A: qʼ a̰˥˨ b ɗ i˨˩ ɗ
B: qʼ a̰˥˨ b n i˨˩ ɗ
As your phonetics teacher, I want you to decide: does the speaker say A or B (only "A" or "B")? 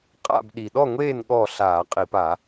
A